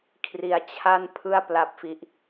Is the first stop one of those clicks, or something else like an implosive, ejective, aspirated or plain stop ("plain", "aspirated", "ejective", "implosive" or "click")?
aspirated